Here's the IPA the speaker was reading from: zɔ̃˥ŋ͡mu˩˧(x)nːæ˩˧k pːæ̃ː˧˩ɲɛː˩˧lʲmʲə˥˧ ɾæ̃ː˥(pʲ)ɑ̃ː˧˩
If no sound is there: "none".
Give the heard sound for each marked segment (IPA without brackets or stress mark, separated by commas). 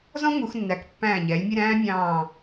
x, mʲ